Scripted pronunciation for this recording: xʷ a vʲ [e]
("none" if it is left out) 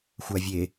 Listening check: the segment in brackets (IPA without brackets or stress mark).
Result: e